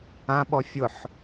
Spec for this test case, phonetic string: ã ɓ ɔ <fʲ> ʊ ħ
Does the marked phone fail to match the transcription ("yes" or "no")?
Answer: no